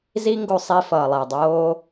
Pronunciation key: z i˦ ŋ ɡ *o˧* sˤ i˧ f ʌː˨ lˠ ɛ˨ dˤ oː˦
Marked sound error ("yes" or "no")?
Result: no